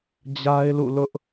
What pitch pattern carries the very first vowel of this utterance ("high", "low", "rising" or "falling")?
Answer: high